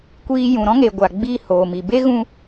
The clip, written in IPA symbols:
kʷ iː˧ j ũ˨ ɾ ɔ̃˦ ŋ e˨ ɡʷ a˨ ɡ͡b iː˧ h oː˨ m i˨ b e˦ ɣ ũ˧

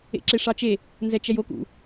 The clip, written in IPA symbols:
ḛ ǁ e ʂ ɑ t͡ʃ e | n z ɛ t͡ʃ ɛ j o k ṵ

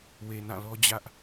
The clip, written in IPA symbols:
w e˨ n ã˦˨ l ɔ˦ d͡ʑ ä˦ ʔ

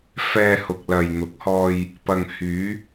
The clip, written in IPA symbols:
f ɛː˧ h ʊ˨ k̚ l ɐ˨ j n̪ ʊ˨˥ k̚ h ɔː˧ j | p ɐ˨ ŋ h yː˨˧

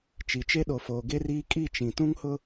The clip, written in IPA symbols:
t͡ʃ i˨ t͡ʃ e˦ ɗ o˨ f oː˨ ɡ e˦ r iː˦ kʼ i˦˨ t͡ʃ ĩ˨ t ũ˦ ŋ h ʊ˦

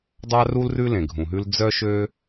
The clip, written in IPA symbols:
dˤ ɑ˦ r u˦ l r ʉ˦ l ẽ˨ ɡʱ ũ˨ ɦ ʉ˦ l d͡z œ˦ ʃ ø˦

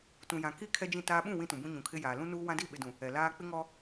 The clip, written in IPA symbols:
t ũ˨ j ã˨ k i˦ kʰ ɛ˦ d͡ʒ ĩ˦˨ t aː˦ ɓ ũ˦˨ w ĩ˦ t ũ˨ b ũ˦ ɲ ũ˨ kʰ ɪ˦ j aː˨ l ũ˦ n uː˦ w ã˦ d i˦˨ ɓ ɪ˨ d ũ˨ | ɛ˨ l aː˦ k͡p ɪ˦ ŋ ɔ˦

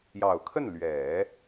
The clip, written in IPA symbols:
j ɑ˨˩ ʊ̯ kʰ ə˥˩ n l ɥ ɛ˨˩˦

